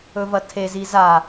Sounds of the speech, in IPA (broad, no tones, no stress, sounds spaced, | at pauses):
ɵ v ɐ tʰ e z i z a